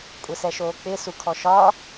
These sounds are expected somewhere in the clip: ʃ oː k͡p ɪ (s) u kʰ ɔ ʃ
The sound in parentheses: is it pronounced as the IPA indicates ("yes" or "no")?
yes